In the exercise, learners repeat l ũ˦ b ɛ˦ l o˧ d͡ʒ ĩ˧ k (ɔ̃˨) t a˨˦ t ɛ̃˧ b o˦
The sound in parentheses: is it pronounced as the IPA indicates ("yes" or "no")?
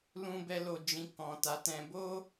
yes